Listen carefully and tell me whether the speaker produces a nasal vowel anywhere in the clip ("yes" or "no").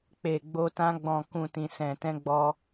yes